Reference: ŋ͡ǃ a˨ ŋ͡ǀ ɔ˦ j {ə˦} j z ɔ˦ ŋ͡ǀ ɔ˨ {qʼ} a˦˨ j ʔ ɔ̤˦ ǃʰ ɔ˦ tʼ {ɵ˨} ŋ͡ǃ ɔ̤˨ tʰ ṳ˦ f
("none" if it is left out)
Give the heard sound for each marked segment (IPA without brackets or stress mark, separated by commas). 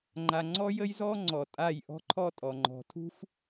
ə˦, tʼ, ɔ˨